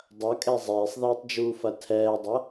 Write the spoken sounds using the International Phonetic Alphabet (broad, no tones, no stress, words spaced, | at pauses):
dˤɐkʼɛ zˤeːsˤðeːtˤd͡ʒuːfɐ tʰɛːdˤɐ